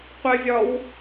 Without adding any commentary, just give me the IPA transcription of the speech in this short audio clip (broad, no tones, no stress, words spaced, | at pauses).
qʷɘvʲɒw